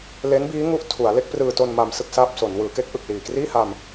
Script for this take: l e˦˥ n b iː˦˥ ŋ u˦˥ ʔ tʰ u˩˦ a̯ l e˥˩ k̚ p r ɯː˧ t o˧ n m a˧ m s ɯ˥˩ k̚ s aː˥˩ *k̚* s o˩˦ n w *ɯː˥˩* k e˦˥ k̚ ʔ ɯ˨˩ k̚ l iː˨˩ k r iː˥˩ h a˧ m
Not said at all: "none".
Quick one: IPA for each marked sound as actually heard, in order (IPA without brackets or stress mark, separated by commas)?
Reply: p̚, ɯː˩˦